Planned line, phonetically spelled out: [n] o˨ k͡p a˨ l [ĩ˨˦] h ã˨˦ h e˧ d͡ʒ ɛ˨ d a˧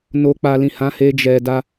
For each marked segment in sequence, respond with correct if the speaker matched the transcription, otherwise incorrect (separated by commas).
correct, incorrect